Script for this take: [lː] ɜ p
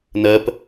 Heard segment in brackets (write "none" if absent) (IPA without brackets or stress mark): n